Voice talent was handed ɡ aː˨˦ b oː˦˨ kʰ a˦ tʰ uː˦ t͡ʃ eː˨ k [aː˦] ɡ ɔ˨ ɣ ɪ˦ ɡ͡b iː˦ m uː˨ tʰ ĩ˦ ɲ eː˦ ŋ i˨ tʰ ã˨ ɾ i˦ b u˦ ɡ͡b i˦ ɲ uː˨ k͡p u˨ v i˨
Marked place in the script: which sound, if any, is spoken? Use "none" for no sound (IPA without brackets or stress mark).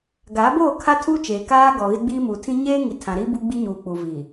aː˦